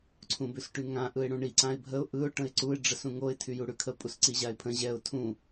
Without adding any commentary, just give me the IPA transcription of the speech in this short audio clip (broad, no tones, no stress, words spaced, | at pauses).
ǀʰũbʉsʈyŋã ʔɯɪ̯ɽũɳi ǀãɪ̯bʱəʊ̯ ʔɯʊ̯ ʈə̃ɪ̯ǀuɪ̯ ɖ͡ʐəsũŋoɪ̯ tʰyjuɽʉkʰə pʼusǀiʑaɪ̯pʰə̃ ʑɛʊ̯ tʰũ